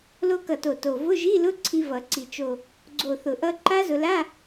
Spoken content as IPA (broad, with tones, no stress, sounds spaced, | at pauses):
l o˧ k ʌ˨˩ t o˨˩ t o˨˩ v ʊ˧˥˧ ʒ i˧˥˧ l ʊ˧˥˧ ǀʰ i˧ v ʌ˨˩˦ ǀ i˨˩ t͡ʃ o˨˩ | ɡ͡ǀ o˨˩ θ ʊ˨˩˦ ʔ ʌ˧ ǃ a˦˥ z ʊ˧ l a˧˥˧